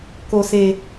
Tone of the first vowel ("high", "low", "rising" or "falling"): low